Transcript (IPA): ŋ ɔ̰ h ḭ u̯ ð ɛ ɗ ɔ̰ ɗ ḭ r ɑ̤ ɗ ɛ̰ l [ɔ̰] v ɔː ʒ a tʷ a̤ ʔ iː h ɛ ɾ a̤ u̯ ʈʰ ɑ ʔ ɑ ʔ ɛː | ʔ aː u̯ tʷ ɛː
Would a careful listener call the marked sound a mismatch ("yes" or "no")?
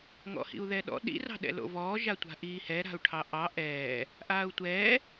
yes